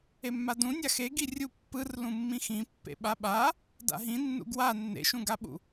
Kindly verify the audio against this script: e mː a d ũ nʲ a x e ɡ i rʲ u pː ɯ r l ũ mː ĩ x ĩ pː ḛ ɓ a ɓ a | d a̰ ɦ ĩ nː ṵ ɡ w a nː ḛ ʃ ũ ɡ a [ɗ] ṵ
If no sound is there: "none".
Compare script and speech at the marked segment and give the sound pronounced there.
ɓ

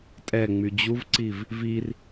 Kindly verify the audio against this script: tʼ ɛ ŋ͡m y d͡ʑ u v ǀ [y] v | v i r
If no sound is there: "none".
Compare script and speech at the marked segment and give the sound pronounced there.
i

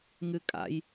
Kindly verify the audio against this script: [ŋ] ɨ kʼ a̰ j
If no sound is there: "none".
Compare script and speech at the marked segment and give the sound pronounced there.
ŋ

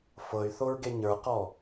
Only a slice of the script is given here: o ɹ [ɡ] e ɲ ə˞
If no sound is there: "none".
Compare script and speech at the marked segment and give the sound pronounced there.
ɡ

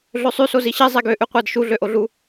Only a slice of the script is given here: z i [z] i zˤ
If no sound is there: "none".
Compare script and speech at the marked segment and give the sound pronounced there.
ɕ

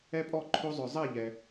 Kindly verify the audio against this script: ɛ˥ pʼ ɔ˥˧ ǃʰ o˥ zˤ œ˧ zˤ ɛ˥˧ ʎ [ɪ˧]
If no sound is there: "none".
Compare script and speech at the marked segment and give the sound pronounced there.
ɛ˧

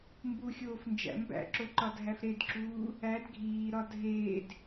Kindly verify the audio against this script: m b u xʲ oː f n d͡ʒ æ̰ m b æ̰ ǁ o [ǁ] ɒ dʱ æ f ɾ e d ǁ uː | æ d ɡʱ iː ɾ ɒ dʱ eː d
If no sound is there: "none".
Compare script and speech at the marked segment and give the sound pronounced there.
ǃ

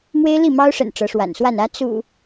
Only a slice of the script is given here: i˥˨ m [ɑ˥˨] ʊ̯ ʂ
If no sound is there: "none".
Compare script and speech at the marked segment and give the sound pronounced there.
ɑ˦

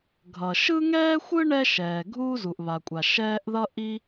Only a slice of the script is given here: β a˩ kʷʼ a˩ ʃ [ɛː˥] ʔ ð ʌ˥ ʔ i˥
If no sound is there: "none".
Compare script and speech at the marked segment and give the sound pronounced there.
ɛː˥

